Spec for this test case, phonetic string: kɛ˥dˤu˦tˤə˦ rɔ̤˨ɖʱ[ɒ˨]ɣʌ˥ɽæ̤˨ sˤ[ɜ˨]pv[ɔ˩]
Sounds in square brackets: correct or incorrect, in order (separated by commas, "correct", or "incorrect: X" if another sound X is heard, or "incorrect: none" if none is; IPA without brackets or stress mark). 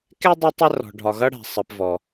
correct, correct, correct